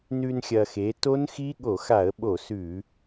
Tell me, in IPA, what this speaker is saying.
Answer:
nʉ˧n xʲɐ˧xe˨˥ to˦˥nxi˦˥ ɠo˧˩˧xa˧˩˧ə̯ɓo˧˩˧ sʉ˧˩˧

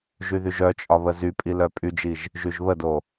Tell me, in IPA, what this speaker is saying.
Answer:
ʒyðyʒœt͡ʃʼɒ βəzypʼi lœpʼyd͡ʒiʒ | ʒyʒβədo

